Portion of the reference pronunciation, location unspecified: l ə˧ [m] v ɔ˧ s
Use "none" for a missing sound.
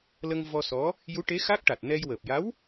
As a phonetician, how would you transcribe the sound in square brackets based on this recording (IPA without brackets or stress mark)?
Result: ŋ